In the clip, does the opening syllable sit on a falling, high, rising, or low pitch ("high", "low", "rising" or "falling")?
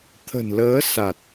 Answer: low